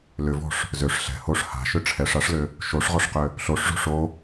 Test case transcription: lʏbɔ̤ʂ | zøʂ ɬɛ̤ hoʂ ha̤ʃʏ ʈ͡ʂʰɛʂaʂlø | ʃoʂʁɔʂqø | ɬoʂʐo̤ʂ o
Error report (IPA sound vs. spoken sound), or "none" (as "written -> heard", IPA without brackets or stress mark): b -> v